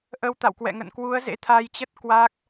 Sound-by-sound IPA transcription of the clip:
ʔ ə˧ w t̪ a̰˧˨ w k w ɛ̰˧˨ ŋ ə̰˧˨ n k w u˨˦ ə̯ z ḛ˧˥ t̪ʰ a˧ j t͡ɕ ə˦˥ t̚ k w a˦˥ k̚

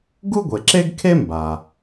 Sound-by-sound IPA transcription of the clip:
ɡ u˥ ɡʷ e˩ ǁ e˥ ɡ kʰ e˥ m b a˩

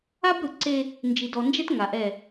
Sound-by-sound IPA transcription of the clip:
a˦ b ɾ ɯ˨ ǀ e˦ | n d͡ʒ i˨ d ɔ˨ n d͡ʒ ɛ˦ t ŋ a˨ ʔ ɛ˦˨

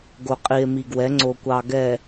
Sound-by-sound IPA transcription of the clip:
ɡ o˨ qʼ i˨ e̯ m i˨ ɡ w ɛ˨˦ ŋ͡ǀ o˨ kʷ ɑ˨ ɡ ɛ˨

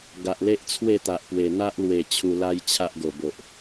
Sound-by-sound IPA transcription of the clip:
ɡ a˨ ʔ l e˦ ʔ t͡sʰ w e˥˧ t̪ a˨ ʔ p w e˨˩ n̪ a˦ ʔ l w e˨˩ t͡ɕʰ u˧ l a˦ j t͡ɕʰ a˦ ʔ ɡ o˨˩ b o˨ ʔ

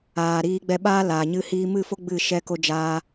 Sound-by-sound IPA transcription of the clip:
aː˨ ɾ iː˧ ɡ͡b ɛ˧ ɓ aː˦ l aː˨ ɲ ɨ˦ h iː˦ m ɨ˦˨ f o˦ ɡ͡b ɨ˦˨ ʃ ɛ˧ k o˧ d͡ʒ aː˧

